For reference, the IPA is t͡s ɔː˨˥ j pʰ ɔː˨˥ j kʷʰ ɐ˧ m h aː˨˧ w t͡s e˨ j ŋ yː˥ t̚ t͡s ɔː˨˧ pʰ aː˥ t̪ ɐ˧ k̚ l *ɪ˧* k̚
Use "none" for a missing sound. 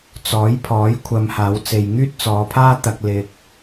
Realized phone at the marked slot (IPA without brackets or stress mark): ɪ˧